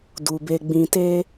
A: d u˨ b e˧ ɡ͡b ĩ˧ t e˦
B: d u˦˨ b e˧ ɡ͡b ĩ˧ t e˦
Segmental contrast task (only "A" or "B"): A